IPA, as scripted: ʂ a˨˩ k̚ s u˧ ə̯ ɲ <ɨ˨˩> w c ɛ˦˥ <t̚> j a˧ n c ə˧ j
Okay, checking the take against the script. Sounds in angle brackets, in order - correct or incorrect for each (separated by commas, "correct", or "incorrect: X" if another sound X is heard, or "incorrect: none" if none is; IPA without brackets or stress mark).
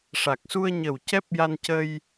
incorrect: ə˨˩, incorrect: p̚